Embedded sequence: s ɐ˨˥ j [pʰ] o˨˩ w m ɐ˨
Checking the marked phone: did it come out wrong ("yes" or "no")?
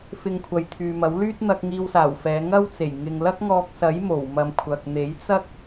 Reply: yes